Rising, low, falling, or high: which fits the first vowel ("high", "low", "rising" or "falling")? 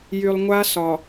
low